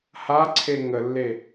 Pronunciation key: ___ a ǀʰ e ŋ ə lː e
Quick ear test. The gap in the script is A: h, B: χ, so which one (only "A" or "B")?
A